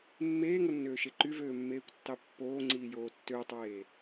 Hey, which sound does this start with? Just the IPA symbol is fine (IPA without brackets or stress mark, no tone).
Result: mː